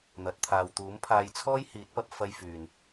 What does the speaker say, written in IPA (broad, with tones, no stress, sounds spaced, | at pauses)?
n̪ ɐ˨ t̚ t̪ʰ aː˨ w t̪ uː˨˥ m pʰ aː˧ j t͡sʰ ɔː˥ j h iː˨˥ t̚ p ɐ˧ p̚ f ɐ˧ j f yː˨ n